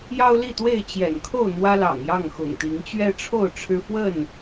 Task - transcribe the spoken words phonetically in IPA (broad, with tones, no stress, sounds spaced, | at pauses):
j ɑ˦ ʊ̯ l i˥˨ t̪ w e˥˨ ɪ̯ t͡ɕ j ɛ̰˨˩ n kʰ o˥˨ ʊ̯ n̪ w ä˦ l ɑ̰˨˩ ŋ j ɑ˥˨ ŋ x ʊ̰˨˩ ŋ t̪ i˨˦ ŋ t͡ɕ ɥ ɛ˦ ʈ͡ʂʰ o˥˨ ʊ̯ ʈ͡ʂʰ ɻ̩˦ f w ə˥˨ n